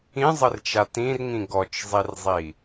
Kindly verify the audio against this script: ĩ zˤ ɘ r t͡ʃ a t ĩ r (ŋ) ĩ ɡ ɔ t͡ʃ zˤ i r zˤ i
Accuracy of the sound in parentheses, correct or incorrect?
correct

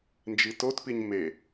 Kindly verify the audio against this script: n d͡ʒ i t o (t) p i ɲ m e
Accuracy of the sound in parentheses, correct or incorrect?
correct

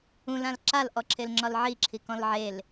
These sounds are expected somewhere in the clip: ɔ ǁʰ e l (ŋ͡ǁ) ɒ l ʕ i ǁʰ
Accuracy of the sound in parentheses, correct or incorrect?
correct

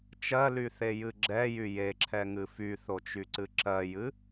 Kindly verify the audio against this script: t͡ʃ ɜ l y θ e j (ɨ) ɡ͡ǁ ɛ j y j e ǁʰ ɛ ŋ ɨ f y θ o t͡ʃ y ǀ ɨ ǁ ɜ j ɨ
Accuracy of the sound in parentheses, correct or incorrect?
correct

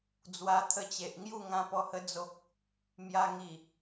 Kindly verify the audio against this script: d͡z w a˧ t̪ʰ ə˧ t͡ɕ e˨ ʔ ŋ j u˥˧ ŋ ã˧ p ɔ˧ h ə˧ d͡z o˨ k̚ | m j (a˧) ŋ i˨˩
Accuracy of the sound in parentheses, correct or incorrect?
correct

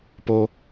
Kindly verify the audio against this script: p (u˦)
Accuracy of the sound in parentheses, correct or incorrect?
incorrect: o˦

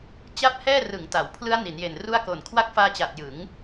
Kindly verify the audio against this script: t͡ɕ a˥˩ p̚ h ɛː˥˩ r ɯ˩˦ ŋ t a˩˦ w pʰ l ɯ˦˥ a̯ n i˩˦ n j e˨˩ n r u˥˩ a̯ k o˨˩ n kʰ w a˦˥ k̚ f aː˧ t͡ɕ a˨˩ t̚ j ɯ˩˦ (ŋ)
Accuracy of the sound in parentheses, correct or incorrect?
correct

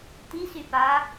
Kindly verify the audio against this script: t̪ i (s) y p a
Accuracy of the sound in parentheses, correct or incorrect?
correct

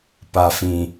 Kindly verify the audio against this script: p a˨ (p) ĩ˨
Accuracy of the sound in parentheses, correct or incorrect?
incorrect: f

